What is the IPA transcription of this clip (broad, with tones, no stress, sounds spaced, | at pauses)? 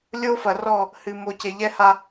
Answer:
lʲ o˦ f ɐ˨ r ɔ˦˨ | h ɨ˨ m o˨ c e˨ ʎ ɛ˦ h a˦